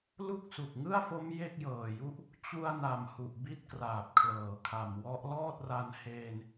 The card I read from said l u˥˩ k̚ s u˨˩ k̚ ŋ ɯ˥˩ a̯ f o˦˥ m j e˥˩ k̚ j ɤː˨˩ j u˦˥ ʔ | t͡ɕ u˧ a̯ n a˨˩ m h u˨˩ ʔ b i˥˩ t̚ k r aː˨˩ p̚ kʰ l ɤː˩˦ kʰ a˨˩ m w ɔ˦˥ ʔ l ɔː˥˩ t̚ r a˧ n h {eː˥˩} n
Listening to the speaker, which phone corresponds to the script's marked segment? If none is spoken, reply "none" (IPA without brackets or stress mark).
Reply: eː˧